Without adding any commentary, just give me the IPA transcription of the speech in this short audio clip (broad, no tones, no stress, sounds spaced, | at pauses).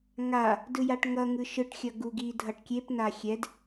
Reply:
ŋ a | d ɯ j a ʈ ŋ ʌ ŋ ɯ ʃ ɯ ʈ xʲ ʌ ɡ u ɡ i dʱ ʌ ʈ kʲ e p n a xʲ ɛ d